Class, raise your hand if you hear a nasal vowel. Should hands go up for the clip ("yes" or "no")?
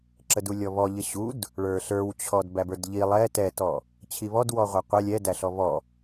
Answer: no